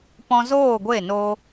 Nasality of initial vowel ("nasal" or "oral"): nasal